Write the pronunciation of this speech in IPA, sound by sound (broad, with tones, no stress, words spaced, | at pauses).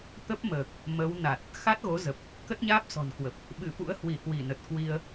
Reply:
t̪ə˦˥p̚məː˨˩k̚ | mə˨˦w na˨˩t̚ | xa˦˥t̚ɣo˨˦zə˨˩p̚ | kə˦˥t̚ɲaː˦˥p̚sɔ̤˨˩nkwə˨˩p̚ | ɓɨ˧˩fṵ˧˥ə̯ hwi˧˩hwi˧˩nə˨˩t̚ kwi˧ə̯